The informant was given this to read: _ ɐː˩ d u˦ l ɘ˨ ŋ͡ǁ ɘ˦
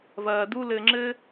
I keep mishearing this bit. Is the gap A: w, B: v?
B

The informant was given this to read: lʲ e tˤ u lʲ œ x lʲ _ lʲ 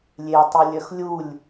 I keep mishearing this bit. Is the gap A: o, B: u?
B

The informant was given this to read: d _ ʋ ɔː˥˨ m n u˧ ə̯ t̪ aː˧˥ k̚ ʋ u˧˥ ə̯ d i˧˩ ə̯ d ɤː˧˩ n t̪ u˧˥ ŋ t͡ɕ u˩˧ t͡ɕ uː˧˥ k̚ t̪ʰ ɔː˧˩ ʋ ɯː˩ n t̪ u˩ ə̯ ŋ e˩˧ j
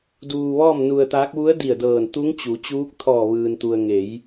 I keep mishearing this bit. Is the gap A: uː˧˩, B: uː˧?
B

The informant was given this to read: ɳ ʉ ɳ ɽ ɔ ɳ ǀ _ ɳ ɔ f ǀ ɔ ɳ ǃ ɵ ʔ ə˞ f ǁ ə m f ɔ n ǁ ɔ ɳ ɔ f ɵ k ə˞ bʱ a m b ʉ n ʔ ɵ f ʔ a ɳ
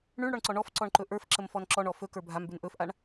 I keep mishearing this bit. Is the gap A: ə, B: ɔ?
B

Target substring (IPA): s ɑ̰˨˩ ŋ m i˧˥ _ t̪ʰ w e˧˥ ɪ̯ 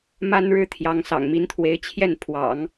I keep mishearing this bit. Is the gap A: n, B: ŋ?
A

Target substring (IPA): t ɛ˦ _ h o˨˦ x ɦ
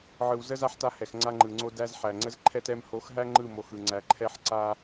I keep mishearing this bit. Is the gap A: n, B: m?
B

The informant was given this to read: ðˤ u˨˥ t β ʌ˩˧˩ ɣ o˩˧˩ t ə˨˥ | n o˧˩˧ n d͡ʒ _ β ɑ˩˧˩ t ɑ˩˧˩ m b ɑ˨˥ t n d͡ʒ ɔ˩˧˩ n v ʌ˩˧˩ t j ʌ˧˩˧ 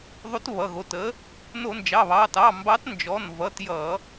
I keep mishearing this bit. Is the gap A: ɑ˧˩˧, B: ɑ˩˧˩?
B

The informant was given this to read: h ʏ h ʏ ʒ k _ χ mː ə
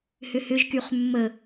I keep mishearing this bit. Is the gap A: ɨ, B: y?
B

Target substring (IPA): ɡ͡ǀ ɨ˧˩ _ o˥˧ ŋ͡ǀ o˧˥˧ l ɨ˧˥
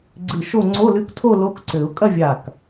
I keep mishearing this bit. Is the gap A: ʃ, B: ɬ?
A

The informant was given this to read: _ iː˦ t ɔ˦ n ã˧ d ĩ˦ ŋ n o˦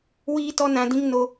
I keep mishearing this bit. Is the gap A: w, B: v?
A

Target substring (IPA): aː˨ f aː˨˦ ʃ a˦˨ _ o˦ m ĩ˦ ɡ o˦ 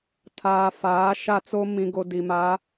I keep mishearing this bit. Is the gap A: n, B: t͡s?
B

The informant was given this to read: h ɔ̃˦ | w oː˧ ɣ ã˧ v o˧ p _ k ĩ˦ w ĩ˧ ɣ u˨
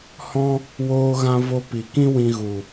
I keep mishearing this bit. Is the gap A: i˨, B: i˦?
A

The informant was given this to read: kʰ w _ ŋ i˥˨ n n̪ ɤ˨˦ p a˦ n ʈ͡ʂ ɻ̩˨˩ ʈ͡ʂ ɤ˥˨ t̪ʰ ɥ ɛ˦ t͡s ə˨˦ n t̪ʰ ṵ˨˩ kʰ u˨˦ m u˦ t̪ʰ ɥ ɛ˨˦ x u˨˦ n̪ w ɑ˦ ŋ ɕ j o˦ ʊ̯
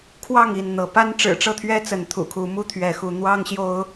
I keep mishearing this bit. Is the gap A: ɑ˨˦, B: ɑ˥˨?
B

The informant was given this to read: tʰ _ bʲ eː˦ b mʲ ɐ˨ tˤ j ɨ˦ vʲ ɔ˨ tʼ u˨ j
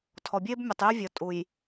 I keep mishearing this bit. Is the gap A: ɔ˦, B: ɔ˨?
B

